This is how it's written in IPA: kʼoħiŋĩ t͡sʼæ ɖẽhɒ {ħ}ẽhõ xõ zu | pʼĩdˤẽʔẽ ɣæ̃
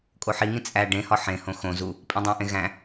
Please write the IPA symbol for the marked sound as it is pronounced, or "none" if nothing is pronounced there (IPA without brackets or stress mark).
ħ